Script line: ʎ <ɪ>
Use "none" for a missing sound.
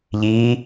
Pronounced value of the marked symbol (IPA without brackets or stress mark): i